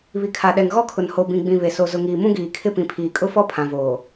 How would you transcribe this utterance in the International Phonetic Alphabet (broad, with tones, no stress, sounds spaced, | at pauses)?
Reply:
β i˨ kʰ a˨ ɗ ɛ˨ ŋ ɣ ɔ˦ kʰ ʊ˨ n h o˨ b ĩ˨ ɡ͡b ĩ˨ β e˨ s o˨ z ʊ˨ ŋ iː˨ m ũ˦ ɡ iː˨ kʰ ɪ˦ p ĩ˨ pʰ iː˨ kʼ ʊ˦ f ɔ˦ pʰ ã˨ v oː˨